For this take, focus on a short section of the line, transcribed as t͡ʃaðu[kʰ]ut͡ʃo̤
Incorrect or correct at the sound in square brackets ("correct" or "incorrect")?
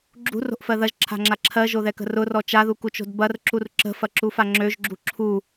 incorrect